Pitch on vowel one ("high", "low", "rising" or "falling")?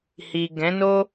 low